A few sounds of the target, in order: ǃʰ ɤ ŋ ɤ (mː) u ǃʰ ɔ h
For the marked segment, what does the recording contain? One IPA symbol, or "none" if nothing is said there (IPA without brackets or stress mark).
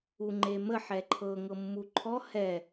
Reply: mː